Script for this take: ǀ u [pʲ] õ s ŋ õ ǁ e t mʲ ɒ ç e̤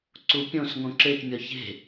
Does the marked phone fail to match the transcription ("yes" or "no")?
no